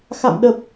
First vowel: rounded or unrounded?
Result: unrounded